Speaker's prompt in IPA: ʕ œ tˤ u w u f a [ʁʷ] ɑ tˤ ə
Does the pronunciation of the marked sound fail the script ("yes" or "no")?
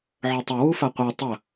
yes